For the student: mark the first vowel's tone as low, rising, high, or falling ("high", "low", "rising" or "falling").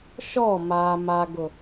falling